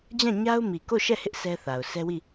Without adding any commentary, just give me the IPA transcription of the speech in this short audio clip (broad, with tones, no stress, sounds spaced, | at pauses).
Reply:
d͡ʑ ã˦˨ ɲ a˦ ʊ̯ m i˨ k o˦˨ ʃ ɛ˦˨ h ɪ˦ ʔ s ɛ˦ θ a˨ ʊ̯ sʰ ɛ˦ w i˦˨